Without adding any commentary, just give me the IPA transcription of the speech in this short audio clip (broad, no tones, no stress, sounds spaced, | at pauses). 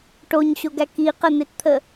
ʈ o ɲ ɕ o ɡ æ k i q ə n̪ e t t̪ʰ ə